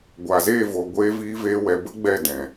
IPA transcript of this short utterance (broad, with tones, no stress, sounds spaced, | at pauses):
ɡʷ a˨ z eː˦˨ v o˨ ɡʷ eː˧ v iː˦ v eː˦ w ɛ˧ b ə˦ ɡ͡b ɛ˦˨ d ɛ̃˨